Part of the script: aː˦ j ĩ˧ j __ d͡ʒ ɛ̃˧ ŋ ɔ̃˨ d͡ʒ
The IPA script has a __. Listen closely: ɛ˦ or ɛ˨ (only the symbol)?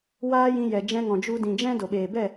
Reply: ɛ˨